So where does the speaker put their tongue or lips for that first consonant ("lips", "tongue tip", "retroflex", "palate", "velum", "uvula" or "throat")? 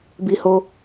lips